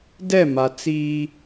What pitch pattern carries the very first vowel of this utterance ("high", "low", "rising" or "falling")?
falling